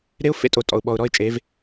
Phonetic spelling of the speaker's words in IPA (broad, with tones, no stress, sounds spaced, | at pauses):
ɾ e˦ ʊ̯ f ḛ˦ tʼ o˨ tʼ ɔ̰˨ ʊ̯ ɓ ɔ˨ ʊ̯ ɾ ɔ˦ ɪ̯ t͡ʃʼ e˨˦ v